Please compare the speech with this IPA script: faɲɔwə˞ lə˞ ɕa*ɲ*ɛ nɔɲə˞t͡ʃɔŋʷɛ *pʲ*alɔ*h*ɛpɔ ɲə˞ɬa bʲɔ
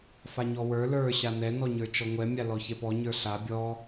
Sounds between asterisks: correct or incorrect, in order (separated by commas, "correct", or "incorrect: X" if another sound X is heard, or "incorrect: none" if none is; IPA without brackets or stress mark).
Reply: incorrect: n, incorrect: mʲ, incorrect: ç